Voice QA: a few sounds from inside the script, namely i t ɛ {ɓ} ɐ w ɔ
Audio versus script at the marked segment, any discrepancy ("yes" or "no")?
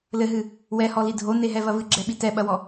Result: no